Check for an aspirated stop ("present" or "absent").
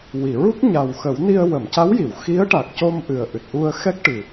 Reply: absent